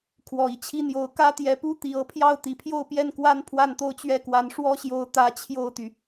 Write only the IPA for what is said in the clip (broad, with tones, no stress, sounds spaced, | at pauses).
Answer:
kʰ w ɔ˨˩ i˥˩ t͡ɕʰ i˥ n̪ j o˧˥ ʊ̯ k ä˥ t̪ j ɛ˧˥ p u˥ t̪ i˨˩ ɤ˥˧ pʰ j ɑ˥˩ ʊ̯ t̪ i˨˩ pʰ j o˥˧ ʊ̯ p j ɛ˥˩ n k w a˥ n pʰ w a˥˩ n t̪ o˥ ʊ̯ t͡ɕ ɥ ɛ˥˩ k w a˧˥ n ʂ w ɔ˥ ɕ j o˧˥ ʊ̯ t̪ ä˧˥ t͡ɕʰ j o˥˩ ʊ̯ t̪ y˩